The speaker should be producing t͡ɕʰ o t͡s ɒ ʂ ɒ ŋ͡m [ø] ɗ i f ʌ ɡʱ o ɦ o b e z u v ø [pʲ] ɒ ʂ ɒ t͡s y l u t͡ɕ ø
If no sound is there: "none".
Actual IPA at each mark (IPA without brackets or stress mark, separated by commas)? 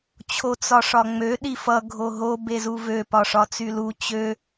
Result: ø, p